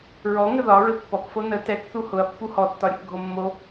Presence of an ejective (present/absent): absent